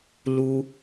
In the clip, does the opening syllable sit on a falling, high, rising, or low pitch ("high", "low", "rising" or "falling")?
high